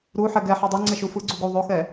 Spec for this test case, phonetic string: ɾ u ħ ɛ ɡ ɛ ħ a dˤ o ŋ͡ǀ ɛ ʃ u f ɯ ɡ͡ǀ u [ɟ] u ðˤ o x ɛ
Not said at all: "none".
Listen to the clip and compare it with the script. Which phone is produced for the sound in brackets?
ɡ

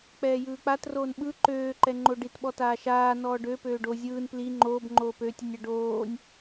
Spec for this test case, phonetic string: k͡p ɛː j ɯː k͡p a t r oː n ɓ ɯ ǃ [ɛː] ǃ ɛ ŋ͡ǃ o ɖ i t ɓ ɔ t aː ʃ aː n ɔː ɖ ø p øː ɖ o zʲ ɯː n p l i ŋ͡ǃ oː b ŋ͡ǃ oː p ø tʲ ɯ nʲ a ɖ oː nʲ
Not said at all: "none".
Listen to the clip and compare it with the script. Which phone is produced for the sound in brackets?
øː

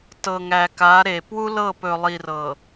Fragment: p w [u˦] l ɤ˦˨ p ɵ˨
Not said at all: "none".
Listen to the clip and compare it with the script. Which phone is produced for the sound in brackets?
u˦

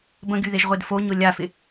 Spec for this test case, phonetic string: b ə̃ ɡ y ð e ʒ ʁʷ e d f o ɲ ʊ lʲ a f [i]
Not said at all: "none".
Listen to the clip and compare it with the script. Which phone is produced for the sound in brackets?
ɪ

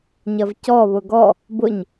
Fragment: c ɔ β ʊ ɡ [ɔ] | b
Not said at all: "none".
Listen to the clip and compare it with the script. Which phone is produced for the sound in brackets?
ɔ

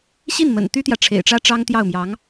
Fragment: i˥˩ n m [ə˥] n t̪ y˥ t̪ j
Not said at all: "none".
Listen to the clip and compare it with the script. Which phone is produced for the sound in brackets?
ə̰˨˩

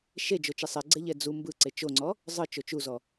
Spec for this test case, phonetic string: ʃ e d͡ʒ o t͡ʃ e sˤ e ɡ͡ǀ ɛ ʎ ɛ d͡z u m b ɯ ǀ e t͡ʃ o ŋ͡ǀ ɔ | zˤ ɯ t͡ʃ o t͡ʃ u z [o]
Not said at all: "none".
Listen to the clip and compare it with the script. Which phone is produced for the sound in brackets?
ɔ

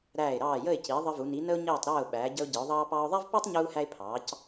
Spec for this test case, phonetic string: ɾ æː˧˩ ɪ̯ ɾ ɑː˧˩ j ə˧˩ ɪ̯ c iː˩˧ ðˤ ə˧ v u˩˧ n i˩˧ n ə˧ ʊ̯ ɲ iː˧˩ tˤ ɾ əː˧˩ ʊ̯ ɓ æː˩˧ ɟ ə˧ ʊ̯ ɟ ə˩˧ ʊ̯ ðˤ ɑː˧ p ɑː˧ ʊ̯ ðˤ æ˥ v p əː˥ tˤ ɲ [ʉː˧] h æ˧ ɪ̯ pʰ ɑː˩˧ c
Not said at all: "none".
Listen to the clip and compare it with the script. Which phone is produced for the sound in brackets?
uː˧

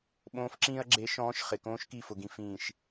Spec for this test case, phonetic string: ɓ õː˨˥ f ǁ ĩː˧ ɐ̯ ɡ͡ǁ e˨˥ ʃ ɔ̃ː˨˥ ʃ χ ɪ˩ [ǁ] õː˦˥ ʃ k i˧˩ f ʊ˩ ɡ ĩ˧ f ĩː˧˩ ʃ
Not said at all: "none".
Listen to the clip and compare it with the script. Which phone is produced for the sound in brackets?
k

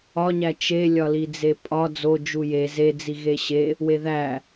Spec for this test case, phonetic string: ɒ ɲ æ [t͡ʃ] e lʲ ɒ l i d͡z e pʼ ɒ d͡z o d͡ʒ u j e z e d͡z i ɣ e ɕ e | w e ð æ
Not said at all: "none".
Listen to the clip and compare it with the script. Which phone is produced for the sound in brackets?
t͡ʃ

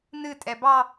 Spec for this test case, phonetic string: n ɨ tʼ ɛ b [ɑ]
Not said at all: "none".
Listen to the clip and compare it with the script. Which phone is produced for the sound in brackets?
ɑ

